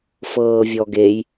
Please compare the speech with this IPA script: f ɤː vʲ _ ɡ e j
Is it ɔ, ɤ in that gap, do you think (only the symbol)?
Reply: ɔ